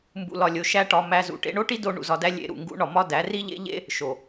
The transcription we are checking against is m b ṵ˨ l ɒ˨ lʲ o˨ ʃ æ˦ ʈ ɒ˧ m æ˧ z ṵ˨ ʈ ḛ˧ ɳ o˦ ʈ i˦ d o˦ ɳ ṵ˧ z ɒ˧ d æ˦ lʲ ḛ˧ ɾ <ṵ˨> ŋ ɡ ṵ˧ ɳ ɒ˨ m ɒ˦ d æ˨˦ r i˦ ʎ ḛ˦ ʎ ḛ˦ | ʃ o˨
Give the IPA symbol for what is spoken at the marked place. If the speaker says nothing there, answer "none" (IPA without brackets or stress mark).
ṵ˨